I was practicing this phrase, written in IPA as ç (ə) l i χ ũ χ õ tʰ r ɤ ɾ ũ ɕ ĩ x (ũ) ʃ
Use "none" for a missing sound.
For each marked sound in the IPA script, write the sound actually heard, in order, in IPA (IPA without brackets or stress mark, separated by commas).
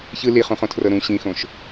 ɯ, õ